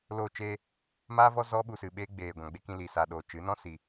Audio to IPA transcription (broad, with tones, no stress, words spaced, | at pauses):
loː˧t͡ʃeː˧ | maː˦vɔ˦ zɔ˦ ɓu˧sɨ˨ɓeː˦ ɡ͡beː˨ɡʷã˨ɡ͡be˦kĩ˧ li˨sa˨ɗoː˨ t͡ʃɨ˨˦nɔ̃˦ si˨